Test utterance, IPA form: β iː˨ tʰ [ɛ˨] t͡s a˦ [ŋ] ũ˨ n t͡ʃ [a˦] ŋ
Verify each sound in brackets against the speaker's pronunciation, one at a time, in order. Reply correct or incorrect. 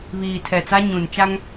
correct, incorrect: ɲ, correct

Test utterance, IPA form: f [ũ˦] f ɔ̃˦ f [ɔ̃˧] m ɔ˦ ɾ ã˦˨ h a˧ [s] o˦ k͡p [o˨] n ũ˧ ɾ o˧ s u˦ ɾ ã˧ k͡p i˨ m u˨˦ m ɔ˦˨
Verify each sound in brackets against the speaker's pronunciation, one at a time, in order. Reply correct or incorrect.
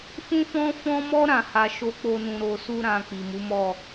correct, incorrect: ɔ̃˦, incorrect: ʃ, incorrect: o˦

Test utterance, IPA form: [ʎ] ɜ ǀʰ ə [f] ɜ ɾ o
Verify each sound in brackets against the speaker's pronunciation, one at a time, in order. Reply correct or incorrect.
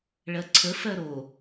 incorrect: ɭ, correct

